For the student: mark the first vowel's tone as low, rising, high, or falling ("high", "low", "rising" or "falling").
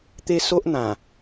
high